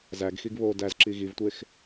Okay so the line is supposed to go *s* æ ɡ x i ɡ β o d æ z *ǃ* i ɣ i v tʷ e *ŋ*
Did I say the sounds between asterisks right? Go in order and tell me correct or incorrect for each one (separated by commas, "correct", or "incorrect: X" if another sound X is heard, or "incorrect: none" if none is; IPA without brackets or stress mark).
incorrect: z, incorrect: ǁ, incorrect: x